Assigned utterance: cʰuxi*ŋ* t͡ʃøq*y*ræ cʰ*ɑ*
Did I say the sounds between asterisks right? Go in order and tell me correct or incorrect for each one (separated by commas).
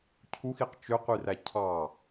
incorrect, correct, correct